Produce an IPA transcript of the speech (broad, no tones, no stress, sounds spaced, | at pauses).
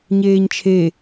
ɲ eː ɲ t͡ʃʰ e